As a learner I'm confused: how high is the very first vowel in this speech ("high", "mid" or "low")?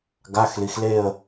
low